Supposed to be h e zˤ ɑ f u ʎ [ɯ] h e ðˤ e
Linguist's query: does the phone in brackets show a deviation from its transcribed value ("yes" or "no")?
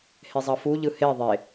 no